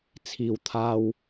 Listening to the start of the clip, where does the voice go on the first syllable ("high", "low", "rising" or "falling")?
low